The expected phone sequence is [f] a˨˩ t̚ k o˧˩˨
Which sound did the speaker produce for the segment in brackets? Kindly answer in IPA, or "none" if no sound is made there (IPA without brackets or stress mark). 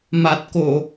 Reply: m